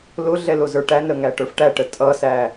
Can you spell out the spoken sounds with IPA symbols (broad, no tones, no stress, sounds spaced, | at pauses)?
l ʊ ɮ ɛ l ʊ z ə˞ ʈ æ n ɾ ə ŋ æ ʈ ə˞ f ʈ æ ʈ ə tʼ ʌ s æ